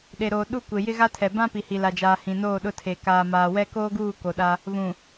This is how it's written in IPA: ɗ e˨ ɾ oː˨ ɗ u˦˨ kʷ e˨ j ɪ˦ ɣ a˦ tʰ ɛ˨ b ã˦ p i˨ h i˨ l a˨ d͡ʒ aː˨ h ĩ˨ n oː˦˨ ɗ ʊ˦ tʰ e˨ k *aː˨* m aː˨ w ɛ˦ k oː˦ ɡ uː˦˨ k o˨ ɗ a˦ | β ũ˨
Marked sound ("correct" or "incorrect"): correct